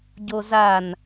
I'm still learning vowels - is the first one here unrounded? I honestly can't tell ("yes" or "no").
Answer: no